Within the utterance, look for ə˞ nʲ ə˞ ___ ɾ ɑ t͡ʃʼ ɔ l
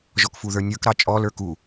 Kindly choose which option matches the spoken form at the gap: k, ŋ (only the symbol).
k